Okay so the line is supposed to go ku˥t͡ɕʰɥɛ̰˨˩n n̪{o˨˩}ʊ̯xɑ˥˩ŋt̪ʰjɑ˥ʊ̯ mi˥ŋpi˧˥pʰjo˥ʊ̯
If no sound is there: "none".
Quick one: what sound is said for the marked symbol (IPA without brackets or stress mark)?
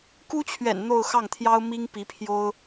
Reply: o˥˧